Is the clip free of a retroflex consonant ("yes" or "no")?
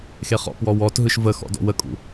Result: yes